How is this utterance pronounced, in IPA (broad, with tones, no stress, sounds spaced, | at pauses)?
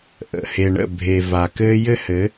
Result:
ʔ ə̰˨ h e˨ ɳ ə̰˦˨ bʱ e˨ v a˨ k ɘ˦ j ɘ˦ h ɘ˨˦